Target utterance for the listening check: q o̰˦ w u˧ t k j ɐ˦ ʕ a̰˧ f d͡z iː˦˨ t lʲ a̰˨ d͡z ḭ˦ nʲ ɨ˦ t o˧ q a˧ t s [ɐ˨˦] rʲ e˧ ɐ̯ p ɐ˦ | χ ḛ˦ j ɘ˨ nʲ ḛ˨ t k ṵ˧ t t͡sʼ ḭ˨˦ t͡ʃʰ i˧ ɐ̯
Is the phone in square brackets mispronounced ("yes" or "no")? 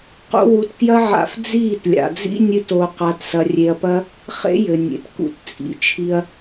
yes